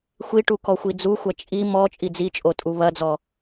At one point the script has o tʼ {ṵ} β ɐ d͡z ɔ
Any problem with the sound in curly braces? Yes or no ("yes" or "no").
yes